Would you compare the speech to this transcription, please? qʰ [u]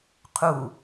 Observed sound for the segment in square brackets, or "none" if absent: u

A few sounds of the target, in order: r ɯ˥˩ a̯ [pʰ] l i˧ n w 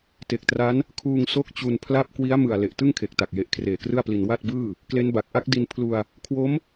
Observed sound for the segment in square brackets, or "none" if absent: p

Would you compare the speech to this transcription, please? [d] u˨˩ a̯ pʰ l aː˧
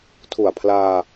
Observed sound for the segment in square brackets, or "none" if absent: tʰ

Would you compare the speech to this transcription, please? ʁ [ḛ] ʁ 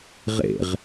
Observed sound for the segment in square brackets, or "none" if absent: ḛ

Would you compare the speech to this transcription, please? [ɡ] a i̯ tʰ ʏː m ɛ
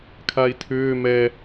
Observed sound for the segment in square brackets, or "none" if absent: kʰ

